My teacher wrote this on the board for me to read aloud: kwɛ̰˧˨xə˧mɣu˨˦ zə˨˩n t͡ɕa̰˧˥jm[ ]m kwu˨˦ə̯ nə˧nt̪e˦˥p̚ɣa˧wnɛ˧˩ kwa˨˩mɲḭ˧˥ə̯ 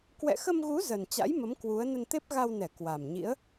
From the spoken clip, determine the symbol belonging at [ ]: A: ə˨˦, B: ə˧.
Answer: A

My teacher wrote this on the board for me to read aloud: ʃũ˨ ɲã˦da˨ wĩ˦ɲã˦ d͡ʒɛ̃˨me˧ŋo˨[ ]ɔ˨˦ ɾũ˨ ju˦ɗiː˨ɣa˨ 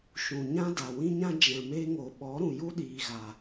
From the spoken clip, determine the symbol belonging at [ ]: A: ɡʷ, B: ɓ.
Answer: B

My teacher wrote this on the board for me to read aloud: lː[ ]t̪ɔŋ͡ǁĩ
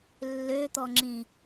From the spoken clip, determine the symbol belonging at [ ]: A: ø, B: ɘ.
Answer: A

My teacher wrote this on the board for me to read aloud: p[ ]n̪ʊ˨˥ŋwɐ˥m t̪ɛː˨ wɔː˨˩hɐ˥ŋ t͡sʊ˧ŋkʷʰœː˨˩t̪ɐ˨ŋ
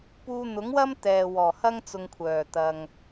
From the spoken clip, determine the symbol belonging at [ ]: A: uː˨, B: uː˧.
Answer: B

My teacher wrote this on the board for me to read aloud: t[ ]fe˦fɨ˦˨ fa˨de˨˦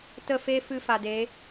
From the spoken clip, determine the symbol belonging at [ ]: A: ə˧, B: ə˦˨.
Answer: B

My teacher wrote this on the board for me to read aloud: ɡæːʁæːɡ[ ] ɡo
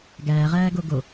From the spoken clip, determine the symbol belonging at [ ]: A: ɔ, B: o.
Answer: B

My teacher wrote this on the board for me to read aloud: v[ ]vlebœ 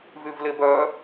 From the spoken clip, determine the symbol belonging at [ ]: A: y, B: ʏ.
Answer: A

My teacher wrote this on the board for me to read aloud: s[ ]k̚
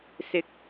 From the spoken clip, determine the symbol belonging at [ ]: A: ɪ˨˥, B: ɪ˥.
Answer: A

